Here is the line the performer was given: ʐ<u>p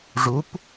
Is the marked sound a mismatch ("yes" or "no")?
no